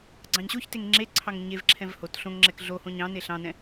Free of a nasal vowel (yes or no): no